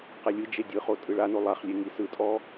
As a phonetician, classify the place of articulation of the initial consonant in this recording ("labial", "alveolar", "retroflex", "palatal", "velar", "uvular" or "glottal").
uvular